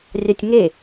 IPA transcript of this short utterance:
rʲ ɑ tʲ ŋ e

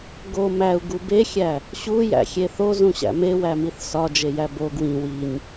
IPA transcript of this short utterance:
ɡ o m æ u̯ ɡ u b e xʲ æ | ɕ u j æ̰ xʲ e θ o z ũ ɕ æ̰ m e w æ m i θ s ɒ d͡ʒ e j æ b o ɡ w ĩ w i ɲ

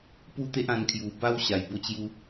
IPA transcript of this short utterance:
p u˦ t̪ e˦ ʔ ã˧ n kʰ j u˨˩ b a˦ w ɕ a˨˩ j b o˥˧ t͡ɕ j u˦

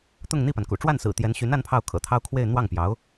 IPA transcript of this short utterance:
t̪ ʊ˥˧ ŋ n̪ i˥˩ p a˩ n k ṵ˨˩ ʈ͡ʂ w a˥˩ n s ɹ̩˨˩ t̪ j ɛ˧˥ n ɕ y˧˥ n a˥ n pʰ ɑ˥˩ ʊ̯ kʰ ɤ̰˨˩ t̪ʰ ɑ˥ ʊ̯ kʰ w e˥˧ ɪ̯ n̪ w ɑ˥˩ ŋ p j ɑ˧˥ ʊ̯

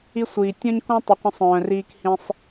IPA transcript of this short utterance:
i˧ sʷ iː˨ tʲ ɔ̃˦ ɲ k ɔ̃˦ tˤ i˨ qʷ ə̃˧ sˤ œ̃ː˨ r iː˧ k h ĩ˧ sˤ

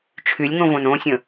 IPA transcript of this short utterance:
t͡ʃʰ y lʲ ŋ õ v õ n õ sʲ ə̃

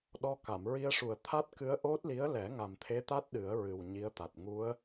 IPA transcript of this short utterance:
ɗ ɔ˧ k a˨˩˨ m ɹ i˧ ə̯ ʂ u˨˩ ə̯ t̪ʰ a˦˥ t̚ k ɨ˧˥ ə̯ ʔ o˦˥ t̚ l i˧˥ ə̯ l ɛ˨˩˦ ŋ a˨˩ m t̪ʰ e˧˥ t̪ a˦˥ t̚ ɗ ɨ˨˩˦ ə̯ ɹ ɨ˨˩ w ɲ i˧˥ ə̯ t̪ a˨˩ t̚ ŋ u˧˥ ə̯

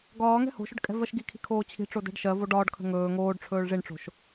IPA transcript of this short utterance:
ɡ ɒː ŋ ɛ̤ h o̤ ʃ ɵ ɖ kʼ ɛ̤ v ɜ ʃ ɡ i kʰ i̤ kʰ oː t͡ɕʰ i̤ ʈ͡ʂ o d ɛ̤ ɖ ʃ ɜ v o ɖ ɒː ɖ kʰ ə̤ ŋ ɵː ŋ oː ɖ ʈ͡ʂʰ ɵː ɭ ʐ i ɳ ʈ͡ʂ o̤ ʃ

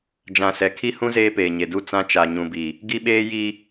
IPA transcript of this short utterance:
d͡ʒ ã˨ s ɛ˨ kʰ i˦ h ũ˦ z eː˦ p eː˨ ɲ e˨ d u˦˨ t͡s ã˦ t͡ʃ a˨ ɲ ũ˨ b i˨ | ɡ i˦ ɓ eː˦ j i˦

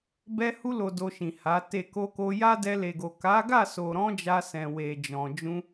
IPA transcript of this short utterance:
b ɛ˧ h u˧ l o˨ d o˧ ʃ ĩ˨ h a˨˦ t e˦˨ k o˧ k o˧ j a˦ d ɛ˧ l e˨ ɡ o˨ k a˨˦ ɡ a˦˨ s o˨ ɾ ɔ̃˧ d͡ʒ a˧ s ɛ̃˨ w e˨ d͡ʒ ɔ̃˨ d͡ʒ ũ˧

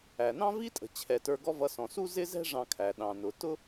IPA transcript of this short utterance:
æ˩ n ɑ̃˥ v i˥ tʼ ə̤˩ t͡ɕʰ ɛ˩ t ə˞˧ ɡ ɔ˥ v ʌ˧ s ɔ̃˩ s u˥ z ɪ˥ z ɛ̤˥ ʐ ɑ̃˧ kʰ æ˩ ɗ ɑ̃˩ n ʊ˩ t ʊ˥

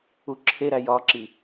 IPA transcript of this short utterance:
u ǁʰ e ɾ æ j ɒ ǁ i

